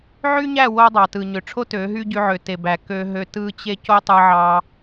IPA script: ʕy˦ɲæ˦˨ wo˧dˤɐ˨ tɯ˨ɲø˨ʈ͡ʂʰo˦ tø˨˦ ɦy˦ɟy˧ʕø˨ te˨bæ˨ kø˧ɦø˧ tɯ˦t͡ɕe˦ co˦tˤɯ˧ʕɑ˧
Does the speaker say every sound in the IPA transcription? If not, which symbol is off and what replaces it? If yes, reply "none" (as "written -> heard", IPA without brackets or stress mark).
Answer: ɐ˨ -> ɑ˨